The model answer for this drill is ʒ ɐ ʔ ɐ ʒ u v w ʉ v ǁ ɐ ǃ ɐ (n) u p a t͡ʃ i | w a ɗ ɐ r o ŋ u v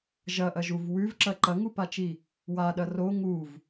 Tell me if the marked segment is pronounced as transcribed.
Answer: no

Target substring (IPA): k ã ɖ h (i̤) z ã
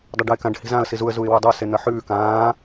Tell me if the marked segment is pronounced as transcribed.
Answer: yes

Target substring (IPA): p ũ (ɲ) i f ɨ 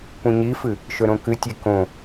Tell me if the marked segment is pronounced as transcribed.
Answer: yes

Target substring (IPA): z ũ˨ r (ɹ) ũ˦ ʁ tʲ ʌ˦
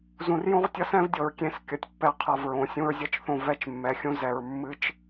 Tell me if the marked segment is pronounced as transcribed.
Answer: no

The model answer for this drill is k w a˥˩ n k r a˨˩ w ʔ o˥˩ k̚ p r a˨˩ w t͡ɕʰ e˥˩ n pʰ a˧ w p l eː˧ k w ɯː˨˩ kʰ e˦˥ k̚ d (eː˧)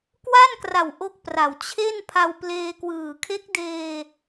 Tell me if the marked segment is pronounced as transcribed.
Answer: yes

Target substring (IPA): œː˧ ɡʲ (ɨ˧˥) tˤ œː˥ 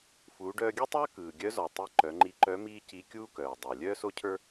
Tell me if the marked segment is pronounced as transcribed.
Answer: no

